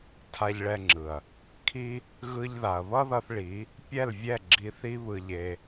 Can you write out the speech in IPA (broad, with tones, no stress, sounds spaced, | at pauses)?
tʰ a˧ ʎ ɭ ɛ˧ ŋ͡ǁ ɯ˨ ɐ̯ | kʰ i˦ | ɣ ɯ˧ ʎ ð a˨ ɐ̯ β ʌ˦ ð ʌ˧ θ ɭ i˨˦ | pʲ ɛ˦˨ l vʲ ɛ˦˨ ɡ͡ǁ i˧ θ i˦ β ɯ˧ ʎ e˧